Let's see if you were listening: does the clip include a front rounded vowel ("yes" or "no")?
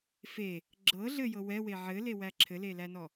no